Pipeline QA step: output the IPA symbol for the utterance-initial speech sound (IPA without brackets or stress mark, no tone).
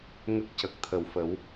ŋ